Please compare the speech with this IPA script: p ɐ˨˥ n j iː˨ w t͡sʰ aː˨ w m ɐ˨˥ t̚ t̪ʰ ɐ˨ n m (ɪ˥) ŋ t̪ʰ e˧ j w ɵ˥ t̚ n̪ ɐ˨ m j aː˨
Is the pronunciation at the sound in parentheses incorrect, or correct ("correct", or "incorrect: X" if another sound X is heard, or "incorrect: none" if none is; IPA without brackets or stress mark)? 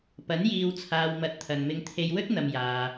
incorrect: ɪ˧